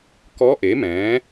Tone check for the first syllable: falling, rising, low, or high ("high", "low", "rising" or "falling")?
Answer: rising